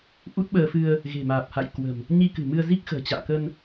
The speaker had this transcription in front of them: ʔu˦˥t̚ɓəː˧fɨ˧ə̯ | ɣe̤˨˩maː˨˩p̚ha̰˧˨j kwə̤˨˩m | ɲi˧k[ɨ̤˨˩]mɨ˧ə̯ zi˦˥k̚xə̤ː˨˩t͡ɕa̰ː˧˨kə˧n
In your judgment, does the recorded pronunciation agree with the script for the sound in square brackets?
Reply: yes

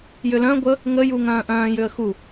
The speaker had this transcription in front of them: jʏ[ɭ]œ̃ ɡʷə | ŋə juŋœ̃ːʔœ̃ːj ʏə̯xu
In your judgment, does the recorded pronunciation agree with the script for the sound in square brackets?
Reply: no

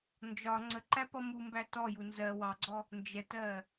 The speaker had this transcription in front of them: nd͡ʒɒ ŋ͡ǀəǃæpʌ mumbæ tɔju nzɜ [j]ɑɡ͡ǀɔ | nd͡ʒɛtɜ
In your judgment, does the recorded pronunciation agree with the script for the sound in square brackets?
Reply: no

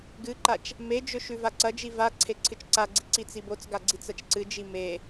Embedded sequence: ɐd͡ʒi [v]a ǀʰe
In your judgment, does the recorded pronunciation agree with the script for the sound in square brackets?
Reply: yes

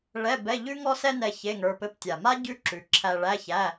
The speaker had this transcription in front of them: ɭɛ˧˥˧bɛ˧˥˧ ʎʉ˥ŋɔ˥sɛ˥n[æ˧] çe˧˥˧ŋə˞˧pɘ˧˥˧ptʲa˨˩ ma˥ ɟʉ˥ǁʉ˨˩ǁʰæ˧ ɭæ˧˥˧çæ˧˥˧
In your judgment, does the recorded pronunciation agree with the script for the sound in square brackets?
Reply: no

